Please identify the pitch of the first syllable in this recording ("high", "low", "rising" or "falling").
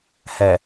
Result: low